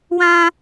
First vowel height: low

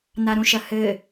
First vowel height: low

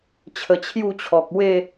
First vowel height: mid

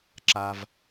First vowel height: low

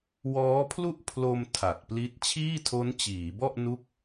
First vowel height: mid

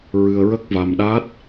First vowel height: high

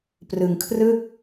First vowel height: high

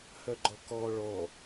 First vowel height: mid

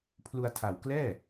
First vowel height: high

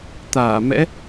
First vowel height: low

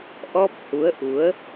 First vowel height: mid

